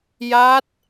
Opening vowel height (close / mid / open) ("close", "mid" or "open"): open